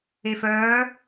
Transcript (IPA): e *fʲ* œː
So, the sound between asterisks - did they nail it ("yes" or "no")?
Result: no